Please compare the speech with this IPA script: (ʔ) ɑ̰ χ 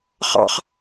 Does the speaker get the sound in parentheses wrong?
yes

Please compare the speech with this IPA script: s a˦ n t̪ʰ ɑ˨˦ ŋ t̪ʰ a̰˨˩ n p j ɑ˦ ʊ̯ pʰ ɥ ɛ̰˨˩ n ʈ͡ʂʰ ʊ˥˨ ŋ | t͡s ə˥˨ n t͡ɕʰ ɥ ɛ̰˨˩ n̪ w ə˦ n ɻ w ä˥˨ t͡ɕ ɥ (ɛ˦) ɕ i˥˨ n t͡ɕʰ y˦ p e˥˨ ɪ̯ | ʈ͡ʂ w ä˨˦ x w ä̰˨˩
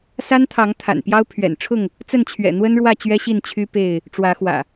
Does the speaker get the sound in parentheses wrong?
no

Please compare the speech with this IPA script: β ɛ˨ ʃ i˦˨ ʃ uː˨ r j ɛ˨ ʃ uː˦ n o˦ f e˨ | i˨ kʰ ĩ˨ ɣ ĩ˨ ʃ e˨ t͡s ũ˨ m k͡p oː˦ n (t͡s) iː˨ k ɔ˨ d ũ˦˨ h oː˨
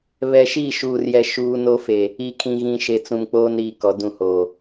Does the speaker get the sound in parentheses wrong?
yes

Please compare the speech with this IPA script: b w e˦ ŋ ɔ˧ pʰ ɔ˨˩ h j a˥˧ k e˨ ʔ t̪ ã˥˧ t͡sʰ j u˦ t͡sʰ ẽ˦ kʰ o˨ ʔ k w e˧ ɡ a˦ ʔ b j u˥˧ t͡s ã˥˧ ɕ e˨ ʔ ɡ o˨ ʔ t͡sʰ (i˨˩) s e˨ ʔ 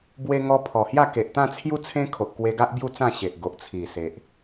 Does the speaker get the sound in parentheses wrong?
no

